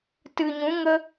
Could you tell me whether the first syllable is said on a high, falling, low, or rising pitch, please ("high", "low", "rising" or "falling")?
low